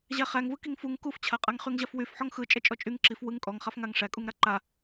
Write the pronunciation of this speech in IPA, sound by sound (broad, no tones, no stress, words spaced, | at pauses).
ʑæχæŋvɯ kiŋfuŋ kuft͡ɕʰaqʼaŋ χyŋʑafwyfħɔŋ xɯ t͡ʃʼɛt͡ʃʼɔt͡ʃʼyŋ ǁif wɯŋ kʼɔŋχaf ŋaŋʂækʼuŋɾa ǃa